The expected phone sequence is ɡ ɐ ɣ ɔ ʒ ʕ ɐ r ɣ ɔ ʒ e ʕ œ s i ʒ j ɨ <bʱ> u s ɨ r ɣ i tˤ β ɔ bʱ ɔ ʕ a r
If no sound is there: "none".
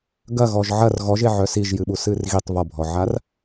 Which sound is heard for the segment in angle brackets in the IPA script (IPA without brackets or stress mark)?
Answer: ɓ